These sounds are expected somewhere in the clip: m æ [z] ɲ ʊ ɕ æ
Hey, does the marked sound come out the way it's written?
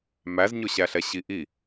yes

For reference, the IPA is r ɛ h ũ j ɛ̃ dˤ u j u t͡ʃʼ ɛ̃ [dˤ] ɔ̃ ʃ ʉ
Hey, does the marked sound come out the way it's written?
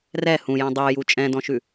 no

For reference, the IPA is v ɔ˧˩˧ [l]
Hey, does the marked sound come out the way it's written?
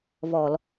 yes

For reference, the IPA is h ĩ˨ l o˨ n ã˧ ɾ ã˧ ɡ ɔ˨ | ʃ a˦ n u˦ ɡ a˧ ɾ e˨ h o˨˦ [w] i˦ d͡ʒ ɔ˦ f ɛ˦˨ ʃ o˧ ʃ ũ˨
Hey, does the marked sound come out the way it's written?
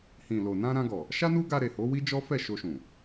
yes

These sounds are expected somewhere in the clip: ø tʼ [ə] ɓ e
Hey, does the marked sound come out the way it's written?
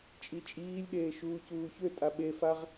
no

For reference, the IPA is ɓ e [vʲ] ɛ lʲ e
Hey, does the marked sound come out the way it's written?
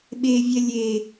yes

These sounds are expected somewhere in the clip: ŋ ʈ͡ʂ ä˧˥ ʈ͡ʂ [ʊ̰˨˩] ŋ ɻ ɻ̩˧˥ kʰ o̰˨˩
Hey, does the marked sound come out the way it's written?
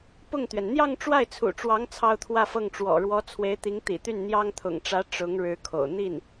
no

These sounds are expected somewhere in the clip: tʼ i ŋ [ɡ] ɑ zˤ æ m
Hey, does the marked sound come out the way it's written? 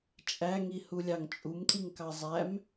no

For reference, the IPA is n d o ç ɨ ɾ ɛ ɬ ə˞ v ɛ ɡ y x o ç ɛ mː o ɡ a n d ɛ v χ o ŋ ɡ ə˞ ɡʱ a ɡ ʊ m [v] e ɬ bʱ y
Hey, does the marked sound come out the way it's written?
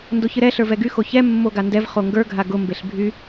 no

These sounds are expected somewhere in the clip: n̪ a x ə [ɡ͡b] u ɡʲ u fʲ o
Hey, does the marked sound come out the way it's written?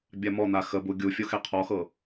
no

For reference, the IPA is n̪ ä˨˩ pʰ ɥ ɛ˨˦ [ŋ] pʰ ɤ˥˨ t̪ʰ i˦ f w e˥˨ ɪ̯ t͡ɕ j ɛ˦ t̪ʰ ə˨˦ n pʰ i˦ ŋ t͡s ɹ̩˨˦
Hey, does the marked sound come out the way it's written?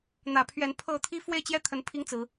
no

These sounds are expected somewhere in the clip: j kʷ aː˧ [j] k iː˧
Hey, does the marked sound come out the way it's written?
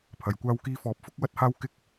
no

